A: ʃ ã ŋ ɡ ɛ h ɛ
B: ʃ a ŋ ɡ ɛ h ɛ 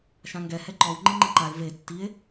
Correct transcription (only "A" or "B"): A